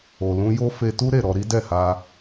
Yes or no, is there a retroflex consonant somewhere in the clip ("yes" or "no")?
no